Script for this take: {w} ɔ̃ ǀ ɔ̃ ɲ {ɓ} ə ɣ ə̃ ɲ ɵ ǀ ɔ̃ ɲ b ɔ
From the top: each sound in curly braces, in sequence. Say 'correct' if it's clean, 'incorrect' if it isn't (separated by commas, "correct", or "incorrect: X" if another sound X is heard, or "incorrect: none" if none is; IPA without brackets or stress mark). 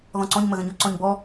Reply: incorrect: ð, incorrect: m